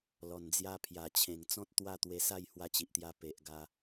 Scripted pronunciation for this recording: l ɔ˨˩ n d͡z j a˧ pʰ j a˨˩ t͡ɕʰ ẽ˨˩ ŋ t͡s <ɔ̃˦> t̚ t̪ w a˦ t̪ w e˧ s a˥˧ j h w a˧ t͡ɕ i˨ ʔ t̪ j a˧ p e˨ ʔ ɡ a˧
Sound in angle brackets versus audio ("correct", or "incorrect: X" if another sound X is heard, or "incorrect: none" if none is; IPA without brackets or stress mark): correct